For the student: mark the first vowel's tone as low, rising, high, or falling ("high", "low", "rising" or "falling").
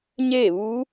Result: falling